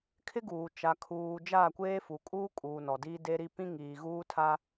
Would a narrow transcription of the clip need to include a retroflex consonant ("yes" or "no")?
no